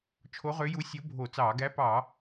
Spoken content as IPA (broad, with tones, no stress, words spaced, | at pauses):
t͡ʃʰo˧˥ʁø˧˥ju˧˥ sʲo˧˥ bʱo˧˩˧t͡sɑː˧˩˧ ɡæ˧˥pɑ˧˩˧